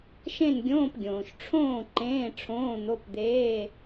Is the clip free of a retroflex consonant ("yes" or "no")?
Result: no